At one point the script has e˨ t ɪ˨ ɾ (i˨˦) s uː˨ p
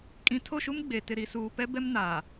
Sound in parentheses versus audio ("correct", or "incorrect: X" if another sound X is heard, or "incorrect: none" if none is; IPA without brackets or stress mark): incorrect: i˨